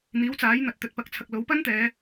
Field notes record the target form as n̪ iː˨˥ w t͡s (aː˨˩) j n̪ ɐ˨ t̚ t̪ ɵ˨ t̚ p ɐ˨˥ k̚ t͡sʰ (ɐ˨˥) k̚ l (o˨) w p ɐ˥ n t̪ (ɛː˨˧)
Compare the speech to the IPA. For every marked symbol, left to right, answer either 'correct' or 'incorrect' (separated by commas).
incorrect, incorrect, incorrect, correct